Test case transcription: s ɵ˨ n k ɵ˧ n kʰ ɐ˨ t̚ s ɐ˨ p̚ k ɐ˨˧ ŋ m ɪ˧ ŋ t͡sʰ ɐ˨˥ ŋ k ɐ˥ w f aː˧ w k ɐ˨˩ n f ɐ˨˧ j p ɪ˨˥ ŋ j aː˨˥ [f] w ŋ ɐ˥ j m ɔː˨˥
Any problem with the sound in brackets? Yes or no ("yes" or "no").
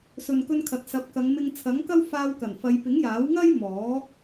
yes